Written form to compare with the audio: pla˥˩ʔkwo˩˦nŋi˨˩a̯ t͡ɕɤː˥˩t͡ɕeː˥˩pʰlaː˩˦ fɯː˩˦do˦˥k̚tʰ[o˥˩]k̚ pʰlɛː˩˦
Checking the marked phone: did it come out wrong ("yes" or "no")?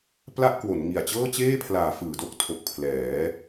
yes